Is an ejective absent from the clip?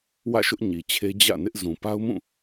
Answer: yes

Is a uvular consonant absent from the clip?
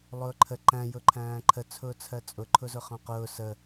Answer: no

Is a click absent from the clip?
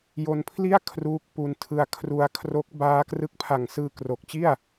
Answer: yes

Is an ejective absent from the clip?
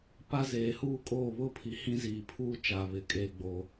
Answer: no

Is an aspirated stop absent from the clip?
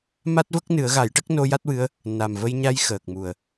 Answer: yes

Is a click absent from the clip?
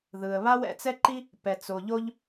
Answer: no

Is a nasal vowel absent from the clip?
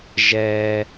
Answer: yes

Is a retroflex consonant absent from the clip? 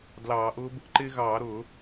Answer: yes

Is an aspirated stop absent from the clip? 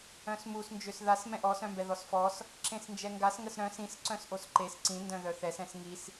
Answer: yes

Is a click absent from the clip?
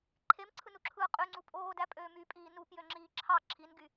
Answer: no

